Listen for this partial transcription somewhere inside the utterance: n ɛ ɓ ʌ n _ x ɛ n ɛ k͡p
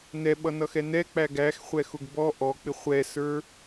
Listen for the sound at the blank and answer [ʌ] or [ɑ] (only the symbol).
ʌ